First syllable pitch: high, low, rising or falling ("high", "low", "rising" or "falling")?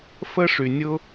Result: high